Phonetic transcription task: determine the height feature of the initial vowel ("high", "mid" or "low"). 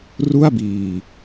high